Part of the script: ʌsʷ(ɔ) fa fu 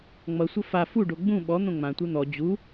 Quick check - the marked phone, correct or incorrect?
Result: incorrect